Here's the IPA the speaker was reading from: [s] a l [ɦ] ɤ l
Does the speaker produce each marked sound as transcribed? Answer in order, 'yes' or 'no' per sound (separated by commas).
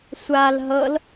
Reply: no, yes